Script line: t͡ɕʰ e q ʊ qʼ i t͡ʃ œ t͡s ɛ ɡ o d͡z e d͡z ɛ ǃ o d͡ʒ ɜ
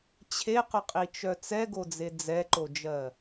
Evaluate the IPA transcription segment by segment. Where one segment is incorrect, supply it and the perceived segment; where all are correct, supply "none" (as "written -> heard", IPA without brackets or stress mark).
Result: none